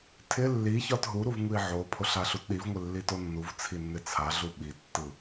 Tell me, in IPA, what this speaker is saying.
tʰ ɪ lː i ç ɒ t ɦ u ɾ u v ŋ ɯ i̯ ʕ o pʰ o ɬ a ɬ u t ɗ i v ŋʷ ɪ lː i t o nː u v t͡sʰ i nː ɪ t͡sʰ a ɮ u ɓ i tː ɯ

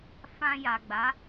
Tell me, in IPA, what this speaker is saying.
f ã˧ j a˨ ɡ͡b a˨˦

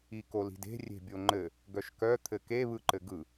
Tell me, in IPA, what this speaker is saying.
i k o l i̤ d e̤ rʲ e̤ bʲ o ŋ͡ǃ ɘ | ɡ œ ʃ k œ t̪ʰ ɘ k e β ɯ ǃ ɘ ɡ ɯ

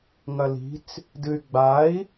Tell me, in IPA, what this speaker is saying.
ŋ ɐ l i̤ t͡s | d ɨ y̯ ɡ͡b a i̯

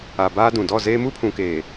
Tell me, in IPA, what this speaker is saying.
a˨ b aː˦ d ũ˨ d ɔ˦˨ z e˦ m u˦ pʰ ũ˨ k eː˨

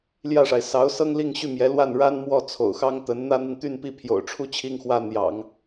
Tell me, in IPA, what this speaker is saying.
l j ä˥˩ ʂ a˩ ɪ̯ s ɑ˧˥ ʊ̯ s ɤ˥ ŋ l i˥˧ ŋ ɕ y˥˩ m j ɛ˧˥ l w a˥˩ n ɻ a˥ n m w ɔ˥˩ t͡sʰ o̰˨˩ ʊ̯ x ɑ˥ ŋ t̪ ə˧˥ n n̪ ä˥ n̪ i˨ n t̪ y˥˧ n p i˥˩ pʰ j o̰˨˩ ʊ̯ ʈ͡ʂʰ u˥ t͡ɕʰ i˥ ŋ x w ä˥ n̪ j ɑ̰˨˩˦ ŋ

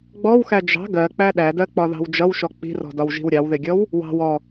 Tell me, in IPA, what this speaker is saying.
ɡ͡b ɔ w x æ d͡ʒ ɑ̤ ɡ ɜ k͡p æ ɗ æ d ɜ k͡p ɒ ð ɑ̤ w d͡ʒ ʌ w ʃ ɔ k͡p i̤ r ɔ̤ d ɒ w ʒ i̤ w ɾʲ ɑ w ð ɪ ɡʲ ɔ w | w ɑ̤ w ɔ

